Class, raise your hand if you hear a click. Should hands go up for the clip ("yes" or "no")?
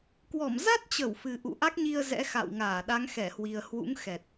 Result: no